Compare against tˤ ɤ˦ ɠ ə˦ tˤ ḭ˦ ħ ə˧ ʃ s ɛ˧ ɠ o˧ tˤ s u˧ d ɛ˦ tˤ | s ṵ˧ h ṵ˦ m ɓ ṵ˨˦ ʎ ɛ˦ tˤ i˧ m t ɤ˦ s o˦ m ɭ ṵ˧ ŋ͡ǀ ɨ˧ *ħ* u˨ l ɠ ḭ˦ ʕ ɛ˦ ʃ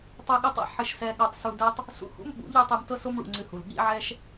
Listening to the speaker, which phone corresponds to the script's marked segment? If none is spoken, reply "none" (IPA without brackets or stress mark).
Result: h